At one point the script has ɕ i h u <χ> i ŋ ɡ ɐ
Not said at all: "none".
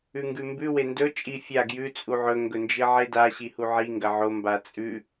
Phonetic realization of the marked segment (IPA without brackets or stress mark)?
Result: ʕ